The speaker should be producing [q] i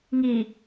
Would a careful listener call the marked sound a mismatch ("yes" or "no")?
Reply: yes